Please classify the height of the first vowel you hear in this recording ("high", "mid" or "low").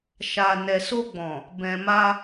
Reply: low